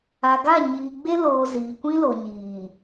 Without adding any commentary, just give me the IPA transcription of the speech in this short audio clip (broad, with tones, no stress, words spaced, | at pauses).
a˨ɡa˦˨ ɲiː˨ɡ͡be˦loː˨ ziː˨kʷĩ˦lo˨ ɲiː˨